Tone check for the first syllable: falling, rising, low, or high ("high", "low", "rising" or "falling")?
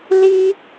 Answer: high